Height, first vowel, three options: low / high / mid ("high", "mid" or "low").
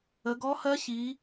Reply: mid